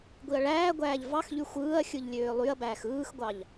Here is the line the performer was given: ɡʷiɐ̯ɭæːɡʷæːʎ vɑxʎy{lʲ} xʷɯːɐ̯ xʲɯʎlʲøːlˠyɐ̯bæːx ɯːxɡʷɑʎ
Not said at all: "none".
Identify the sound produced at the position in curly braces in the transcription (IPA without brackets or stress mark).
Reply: none